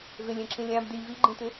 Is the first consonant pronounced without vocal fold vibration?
no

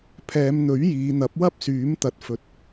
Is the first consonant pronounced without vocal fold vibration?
yes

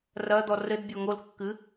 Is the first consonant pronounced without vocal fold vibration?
no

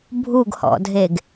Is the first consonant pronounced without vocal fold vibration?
no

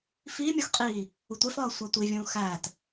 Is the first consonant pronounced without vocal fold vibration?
yes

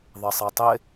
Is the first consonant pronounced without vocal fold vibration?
no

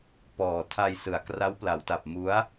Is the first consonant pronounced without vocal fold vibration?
yes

